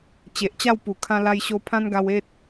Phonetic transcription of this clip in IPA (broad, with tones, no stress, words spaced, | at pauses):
t͡ɕe˨ʔt͡ɕa˥˧w pu˨˩ kʰã˦la˦jɕo˦ pʰã˦nɡa˧we˦t̚